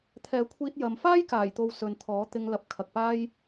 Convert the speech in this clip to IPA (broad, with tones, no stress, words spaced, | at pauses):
t̪ʰɛː˨˧kʷʰiː˧t̚ jɐ˨m faː˥jkaː˨˩jt̪o˨w sɵ˨nt̪ʰɔː˨˥t̪ɪ˧ŋ lɐ˨˥p̚kʰɐ˨k̚paː˥j